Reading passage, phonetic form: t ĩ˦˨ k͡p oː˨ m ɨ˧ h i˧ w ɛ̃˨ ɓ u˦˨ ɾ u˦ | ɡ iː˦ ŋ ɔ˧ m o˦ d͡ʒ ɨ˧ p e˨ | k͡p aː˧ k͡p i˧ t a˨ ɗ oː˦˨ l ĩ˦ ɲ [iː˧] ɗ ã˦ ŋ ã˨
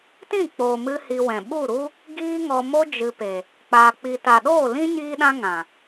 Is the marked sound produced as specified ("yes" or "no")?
no